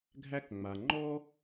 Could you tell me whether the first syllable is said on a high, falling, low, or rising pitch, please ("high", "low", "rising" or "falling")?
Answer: high